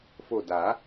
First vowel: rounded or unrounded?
rounded